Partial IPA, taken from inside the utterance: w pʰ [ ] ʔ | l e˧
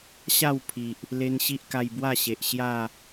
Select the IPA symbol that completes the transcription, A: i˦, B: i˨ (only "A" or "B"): B